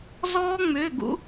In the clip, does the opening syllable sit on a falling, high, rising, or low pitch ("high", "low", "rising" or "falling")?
high